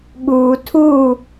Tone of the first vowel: low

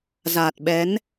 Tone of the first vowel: low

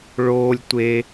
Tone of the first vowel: high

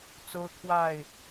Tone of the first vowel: high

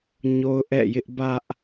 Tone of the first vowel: high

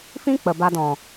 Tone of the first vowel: high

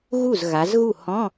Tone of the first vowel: falling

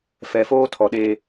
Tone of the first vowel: low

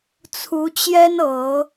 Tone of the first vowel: rising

